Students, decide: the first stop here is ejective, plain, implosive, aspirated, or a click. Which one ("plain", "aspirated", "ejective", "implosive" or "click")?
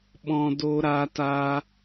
implosive